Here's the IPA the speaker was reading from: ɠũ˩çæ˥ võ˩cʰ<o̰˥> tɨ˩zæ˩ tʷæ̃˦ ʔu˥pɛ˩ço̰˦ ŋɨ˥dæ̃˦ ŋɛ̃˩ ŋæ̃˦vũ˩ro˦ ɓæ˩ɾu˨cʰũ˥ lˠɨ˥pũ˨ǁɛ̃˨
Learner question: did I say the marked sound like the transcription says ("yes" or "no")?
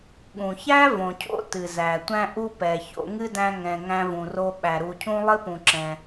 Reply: yes